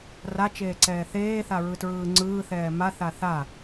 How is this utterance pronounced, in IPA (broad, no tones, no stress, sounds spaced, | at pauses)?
r a t͡ʃ eː ǀ ɛː θ eː θ a ɹ ɯ t ɹ ɯː ŋ͡ǀ ɯː θ ɛː m a θ a θ a